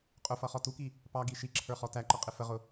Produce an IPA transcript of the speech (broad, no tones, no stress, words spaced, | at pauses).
qʼʊfʌχɔ tuki | pɑɡi ʃiǁʰə˞χɔ tæǃʌqʼɪ fəʁʊ